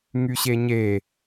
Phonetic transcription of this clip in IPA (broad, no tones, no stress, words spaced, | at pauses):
ŋyɕeɲe